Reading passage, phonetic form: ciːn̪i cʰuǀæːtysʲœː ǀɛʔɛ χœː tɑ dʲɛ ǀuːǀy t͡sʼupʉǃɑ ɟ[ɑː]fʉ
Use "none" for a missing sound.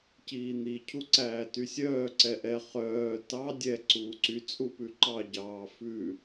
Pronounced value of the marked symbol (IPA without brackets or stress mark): ɑː